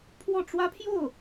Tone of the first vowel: falling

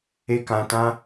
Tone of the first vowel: high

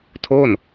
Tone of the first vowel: falling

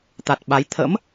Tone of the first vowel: low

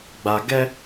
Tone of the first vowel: low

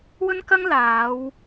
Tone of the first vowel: high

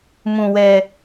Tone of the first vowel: low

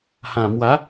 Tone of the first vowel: low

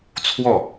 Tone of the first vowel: falling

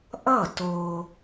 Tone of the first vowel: falling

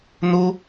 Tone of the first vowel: high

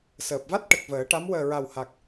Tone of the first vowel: low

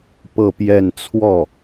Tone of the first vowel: falling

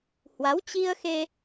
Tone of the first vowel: rising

